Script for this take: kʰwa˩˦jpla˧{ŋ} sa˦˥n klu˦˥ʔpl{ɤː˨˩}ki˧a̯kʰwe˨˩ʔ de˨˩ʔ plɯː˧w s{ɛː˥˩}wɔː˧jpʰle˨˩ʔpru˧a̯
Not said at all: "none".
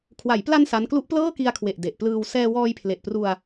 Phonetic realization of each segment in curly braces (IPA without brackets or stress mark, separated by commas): n, ɤː˥˩, ɛː˧